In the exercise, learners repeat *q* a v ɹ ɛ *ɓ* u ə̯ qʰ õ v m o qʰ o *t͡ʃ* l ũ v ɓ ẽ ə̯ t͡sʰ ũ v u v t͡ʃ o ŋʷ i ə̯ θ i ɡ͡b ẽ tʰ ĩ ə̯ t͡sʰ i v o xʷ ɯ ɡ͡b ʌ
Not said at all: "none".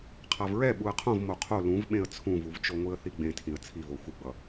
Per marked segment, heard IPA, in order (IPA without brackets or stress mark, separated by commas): qʰ, ɓ, none